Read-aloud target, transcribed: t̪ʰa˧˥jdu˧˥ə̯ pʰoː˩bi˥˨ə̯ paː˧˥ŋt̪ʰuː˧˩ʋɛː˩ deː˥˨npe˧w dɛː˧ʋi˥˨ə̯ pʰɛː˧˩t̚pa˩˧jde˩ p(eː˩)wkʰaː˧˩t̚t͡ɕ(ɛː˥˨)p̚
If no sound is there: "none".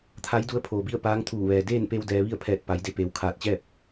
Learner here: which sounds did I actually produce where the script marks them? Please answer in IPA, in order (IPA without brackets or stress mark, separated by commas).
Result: eː˩, ɛː˥˨